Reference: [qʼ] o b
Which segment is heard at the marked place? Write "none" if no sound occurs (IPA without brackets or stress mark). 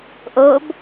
ʔ